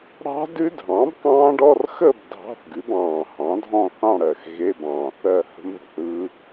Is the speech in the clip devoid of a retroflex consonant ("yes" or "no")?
no